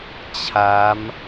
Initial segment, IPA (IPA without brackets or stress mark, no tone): t͡ɕʰ